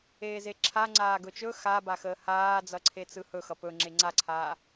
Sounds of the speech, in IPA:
eː z e ǁʰ a ŋ͡ǀ aː ɡ ɵ t͡ʃ ɵ x a b a x əː h aː d͡z ʌ ǀʰ e t͡s ɯ h ɵ x ʌ p ɵ ŋ͡ǁ e ŋ͡ǀ a ǀʰ aː

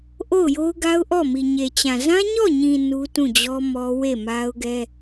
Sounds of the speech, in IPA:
ʔ o˦˨ ʊ̯ j o˦ ʊ̯ ɡ a˦ ʊ̯ ʔ ɔ˦˨ m i˨ ɲ e˨ t͡ɕ ã˨ z ã˦ ɲ ɔ˦˨ ɲ ĩ˨ n u˦ t ũ˦˨ d͡ʑ ɔ˦ m ɔ˦ w e˦˨ m a˦ ʊ̯ ɡ ɛ˦

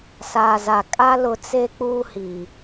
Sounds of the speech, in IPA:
s aː˨ z a˨ kʼ a˦ l ʊ˦ t͡s e˦ k͡p uː˦ h iː˨

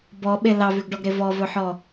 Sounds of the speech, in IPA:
b ɔ ɓ e l ɑ v ʉ ɡ ɖ ɔ ɡ ɾ e v ɔ v ɵ ħ ɔ

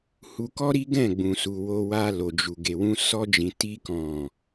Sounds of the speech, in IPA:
h u˧ k ɔ˦ ɾ i˦ ɡ ɛ̃˦˨ ɡ͡b ũ˨ s u˨ w o˧ w a˧ l o˨ d͡ʒ u˨ ɡ e˨ w ũ˧ s ɔ˧ d͡ʒ ĩ˨ t i˧ k ɔ̃˨

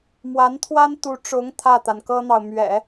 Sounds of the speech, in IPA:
m w a˧˥ n t̪ʰ w a˥ n t̪ u˧˥ ʈ͡ʂ ʊ˧˥ ŋ t̪ʰ ä˥˩ t̪ a˩ n k ɤ˥ n̪ ɑ˨ ʊ̯ m ɥ ɛ̰˨˩˦

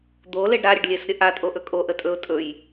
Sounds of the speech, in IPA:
d̪ o l e ɖ ɾ a ɾʲ ə ɖ lʲ e s ɾʲ ə ʔ a tʼ o ʔ ɵ kʼ o ʔ ə tʼ ɵ ʊ̯ tʼ ɵ j

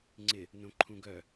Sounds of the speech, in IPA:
ŋ͡ǀ ɪ | n õ ǃʰ ũ ɡ œ

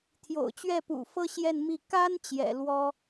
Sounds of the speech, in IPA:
t̪ʰ j o̰˨˩ ʊ̯ t͡ɕ ɥ ɛ˥˩ p ṵ˨˩ f ɤ˥ ɕ j ɛ˥˧ n m i˥˩ k a˥ n t͡ɕ j ɛ̰˨˩ l w ɔ˥

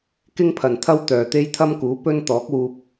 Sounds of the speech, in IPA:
k ɪ˥ ŋ pʰ ɐ˨ n t̪ʰ ɐ˥ w t̪ œː˨ t̪ e˥ j t̪ʰ ɐ˥ m k uː˨˥ p ɵ˥ n t̪ ɔː˨˥ k̚ w uː˧ p̚

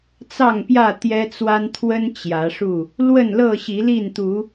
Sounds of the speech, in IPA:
t͡s ɑ˥˨ ŋ p j ä˥˨ t̪ j ɛ˦ t͡s w a˦ n t̪ʰ w ə˦ n t͡ɕ j ä˨˦ ʂ u˥˨ | l w ə˥˨ n l ɤ˥˨ ɕ i˨˦ l i˥˨ n t̪ u˨˦

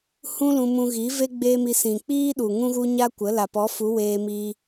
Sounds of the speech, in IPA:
h ũ˦ l ũ˧ m ũ˧ ɣ i˨˦ v e˦ ɡ͡b eː˦ m i˧ s ĩ˨ k͡p iː˦ ɗ u˨ ŋ ũ˦ ɣ u˦ ɲ a˦ kʷ ə˨˦ l a˨ p ɔ˨˦ f u˨˦ w eː˧ m iː˧

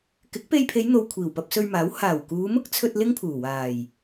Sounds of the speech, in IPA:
k ɪ˨˥ k̚ p e˧ j pʰ e˨˧ j n̪ o˨ w kʷʰ iː˨˩ w p ɐ˧ p̚ s ɵ˧ ɥ m aː˨˥ w h aː˨˩ w k uː˨˧ m ʊ˥ k̚ t͡sʰ ɵ˧ t̚ l ɪ˥ ŋ pʰ uː˨˩ w aː˨˩ j

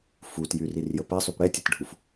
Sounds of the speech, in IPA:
f u t j y r i r j ə p ɛ sˤ y p ɽ ɛ tʲ ɛ t ɖʱ u f

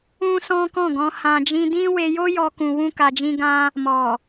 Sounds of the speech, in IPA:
ũ˦ s ɔ̃˦ k ɔ̃˦˨ ɡ ɔ̃˧ h ã˧ d͡ʒ ĩ˦ d ĩ˦ w e˧ j o˦ j ɔ˦ k ũ˧ w ũ˦ k a˧ d͡ʒ ĩ˦ ɡ ã˦ | m ɔ˨

